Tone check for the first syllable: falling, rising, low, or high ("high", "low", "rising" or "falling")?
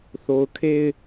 low